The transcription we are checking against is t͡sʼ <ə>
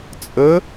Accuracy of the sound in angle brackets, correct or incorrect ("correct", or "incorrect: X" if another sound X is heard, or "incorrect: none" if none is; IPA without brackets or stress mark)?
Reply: correct